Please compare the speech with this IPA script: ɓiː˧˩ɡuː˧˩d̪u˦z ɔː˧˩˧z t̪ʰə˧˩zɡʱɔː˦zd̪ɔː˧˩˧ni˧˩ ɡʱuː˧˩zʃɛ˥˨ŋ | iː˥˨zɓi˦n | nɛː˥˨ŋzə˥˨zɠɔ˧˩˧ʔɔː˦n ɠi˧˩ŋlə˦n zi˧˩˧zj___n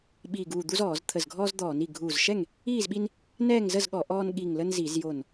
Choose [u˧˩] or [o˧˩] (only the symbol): o˧˩